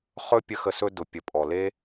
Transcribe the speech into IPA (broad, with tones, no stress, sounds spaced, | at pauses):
χ ɵ˦ pʲ ə˧ x ə˧ s ɵ˧ d ʊ˨ pʲ ə˨ pʼ ɔ˨ l e˦